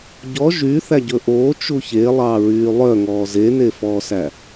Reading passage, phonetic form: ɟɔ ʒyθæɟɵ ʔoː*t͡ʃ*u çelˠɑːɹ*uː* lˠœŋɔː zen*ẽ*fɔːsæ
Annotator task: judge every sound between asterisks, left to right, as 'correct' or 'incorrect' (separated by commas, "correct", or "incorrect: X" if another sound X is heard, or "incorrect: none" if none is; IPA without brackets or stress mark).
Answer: correct, incorrect: yː, incorrect: e